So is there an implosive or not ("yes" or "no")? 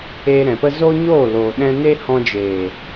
yes